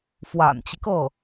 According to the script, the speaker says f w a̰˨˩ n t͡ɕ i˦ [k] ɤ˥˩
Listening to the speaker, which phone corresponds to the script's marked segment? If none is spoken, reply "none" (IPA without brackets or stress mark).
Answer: k